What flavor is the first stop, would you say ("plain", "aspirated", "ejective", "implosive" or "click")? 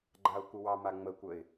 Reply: click